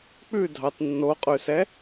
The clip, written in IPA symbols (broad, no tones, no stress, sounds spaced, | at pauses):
k͡p ʉ dʱ ɑ t nː o qʼ ʉ s ɛ